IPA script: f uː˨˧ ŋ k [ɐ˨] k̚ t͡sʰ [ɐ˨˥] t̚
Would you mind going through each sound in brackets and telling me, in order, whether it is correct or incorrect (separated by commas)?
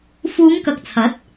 correct, correct